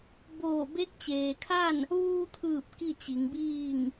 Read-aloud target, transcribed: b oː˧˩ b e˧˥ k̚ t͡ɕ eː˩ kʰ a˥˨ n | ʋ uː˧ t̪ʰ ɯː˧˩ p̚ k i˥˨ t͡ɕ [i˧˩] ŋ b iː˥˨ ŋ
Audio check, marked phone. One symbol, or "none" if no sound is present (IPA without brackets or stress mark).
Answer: i˩˧